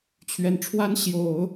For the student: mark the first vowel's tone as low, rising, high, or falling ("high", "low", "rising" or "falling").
low